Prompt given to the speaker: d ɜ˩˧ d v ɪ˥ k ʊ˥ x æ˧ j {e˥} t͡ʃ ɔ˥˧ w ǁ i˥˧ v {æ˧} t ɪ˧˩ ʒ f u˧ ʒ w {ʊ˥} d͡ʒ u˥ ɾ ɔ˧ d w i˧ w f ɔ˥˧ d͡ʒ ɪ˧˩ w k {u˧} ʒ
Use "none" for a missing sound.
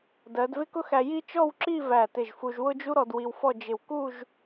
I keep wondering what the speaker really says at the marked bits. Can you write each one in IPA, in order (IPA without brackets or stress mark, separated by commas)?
i˥, æ˧˩, ʊ˥, u˥˧